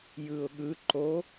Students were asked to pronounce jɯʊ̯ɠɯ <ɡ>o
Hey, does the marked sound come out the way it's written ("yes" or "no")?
no